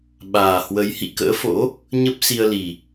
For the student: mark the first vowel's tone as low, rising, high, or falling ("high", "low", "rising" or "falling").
low